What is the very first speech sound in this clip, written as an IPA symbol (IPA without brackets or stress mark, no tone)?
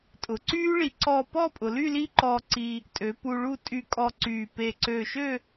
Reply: tʼ